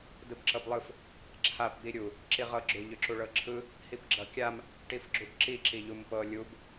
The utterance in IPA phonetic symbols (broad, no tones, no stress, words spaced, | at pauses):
dɯbǁɤblˠɯf | ǁʰap d̪iɾʲu | ǁiʁɤɡ͡ǁʏ ʎʏǁuɭɤǁʰɯ | hipɡ͡ǁʌkʲam | ʈifɡ͡ǁubǁi ǁiʎumpɤ lʲub